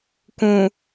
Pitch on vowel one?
low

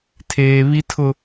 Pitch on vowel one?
high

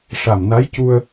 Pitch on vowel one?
low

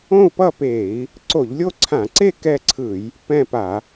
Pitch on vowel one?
falling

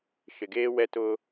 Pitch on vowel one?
low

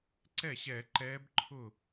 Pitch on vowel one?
falling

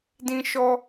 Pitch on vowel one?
high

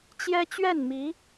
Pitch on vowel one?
high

